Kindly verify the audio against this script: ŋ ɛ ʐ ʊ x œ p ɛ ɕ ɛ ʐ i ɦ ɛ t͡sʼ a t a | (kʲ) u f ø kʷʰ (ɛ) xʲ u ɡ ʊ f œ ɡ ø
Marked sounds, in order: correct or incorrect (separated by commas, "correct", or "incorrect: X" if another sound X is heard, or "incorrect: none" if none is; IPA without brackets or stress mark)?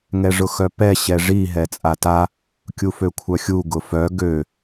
correct, incorrect: œ